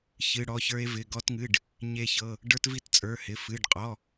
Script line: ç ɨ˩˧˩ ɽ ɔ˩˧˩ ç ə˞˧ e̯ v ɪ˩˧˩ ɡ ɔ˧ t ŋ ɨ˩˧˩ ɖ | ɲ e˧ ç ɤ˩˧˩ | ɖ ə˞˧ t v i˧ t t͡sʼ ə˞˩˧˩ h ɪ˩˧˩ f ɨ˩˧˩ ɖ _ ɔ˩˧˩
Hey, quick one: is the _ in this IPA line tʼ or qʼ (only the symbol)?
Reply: qʼ